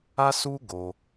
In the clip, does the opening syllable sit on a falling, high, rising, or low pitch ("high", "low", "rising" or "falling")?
high